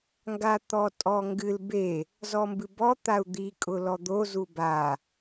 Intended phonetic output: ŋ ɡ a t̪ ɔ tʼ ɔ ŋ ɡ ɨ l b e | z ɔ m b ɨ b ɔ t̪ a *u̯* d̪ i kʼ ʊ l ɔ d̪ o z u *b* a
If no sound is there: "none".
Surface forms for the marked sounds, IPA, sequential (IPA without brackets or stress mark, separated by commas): u̯, b